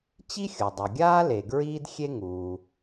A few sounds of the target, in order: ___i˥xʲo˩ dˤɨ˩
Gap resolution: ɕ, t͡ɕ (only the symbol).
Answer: t͡ɕ